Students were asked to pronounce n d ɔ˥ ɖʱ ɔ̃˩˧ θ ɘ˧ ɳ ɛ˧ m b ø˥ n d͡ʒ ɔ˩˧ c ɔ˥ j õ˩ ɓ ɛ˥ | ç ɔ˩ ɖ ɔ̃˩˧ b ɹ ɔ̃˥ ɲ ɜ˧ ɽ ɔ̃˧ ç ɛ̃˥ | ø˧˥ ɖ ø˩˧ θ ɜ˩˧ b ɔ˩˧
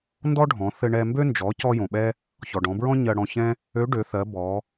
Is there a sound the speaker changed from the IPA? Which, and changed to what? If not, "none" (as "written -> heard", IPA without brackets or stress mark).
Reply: none